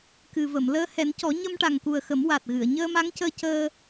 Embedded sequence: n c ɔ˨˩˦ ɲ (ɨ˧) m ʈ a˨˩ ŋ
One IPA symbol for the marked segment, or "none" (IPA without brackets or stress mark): ə˧